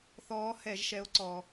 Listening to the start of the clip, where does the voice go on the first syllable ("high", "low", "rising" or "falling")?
rising